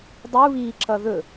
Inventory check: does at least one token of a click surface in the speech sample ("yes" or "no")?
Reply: yes